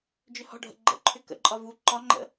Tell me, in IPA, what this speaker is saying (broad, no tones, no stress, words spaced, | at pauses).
d͡ʒʏhɔ̤ɖʱə̰ ɡ͡ǃə̰ ǃʰʏkə̰ǃʼɒ vu ǃɒŋ͡ǃə̰